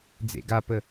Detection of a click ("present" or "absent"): absent